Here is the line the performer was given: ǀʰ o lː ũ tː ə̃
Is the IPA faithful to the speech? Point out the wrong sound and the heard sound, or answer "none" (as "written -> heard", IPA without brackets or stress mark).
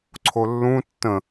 none